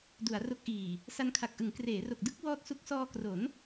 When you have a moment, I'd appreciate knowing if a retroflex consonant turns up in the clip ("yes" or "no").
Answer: no